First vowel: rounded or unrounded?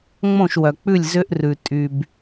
rounded